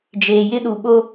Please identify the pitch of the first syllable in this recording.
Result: low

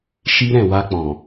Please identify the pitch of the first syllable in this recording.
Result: high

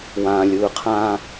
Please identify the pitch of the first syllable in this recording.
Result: low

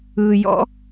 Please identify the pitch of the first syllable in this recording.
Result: low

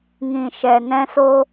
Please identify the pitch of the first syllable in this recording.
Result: low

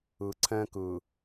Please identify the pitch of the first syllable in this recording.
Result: low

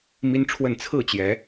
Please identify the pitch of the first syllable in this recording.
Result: high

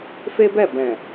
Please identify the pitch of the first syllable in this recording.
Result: high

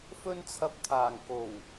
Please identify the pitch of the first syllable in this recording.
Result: high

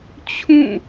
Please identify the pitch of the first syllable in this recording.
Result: falling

